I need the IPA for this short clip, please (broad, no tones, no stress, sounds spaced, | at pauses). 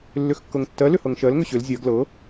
lː ʏ x kː ɤ ŋ tː ɜ l ʏ h ɤ ŋ ʃ ɜ l ŋ ʏ ɕ ʏ l zʲ ɜ ɡ l ɤ